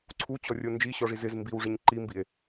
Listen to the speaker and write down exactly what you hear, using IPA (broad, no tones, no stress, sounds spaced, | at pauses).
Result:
ǀʰ u t͡ɕ ɔ rʲ o n d͡ʒ i ɕ ɔ ʐ i z ɪ z m b i w ʐ ɪ ɲ ǃ i m b i e̯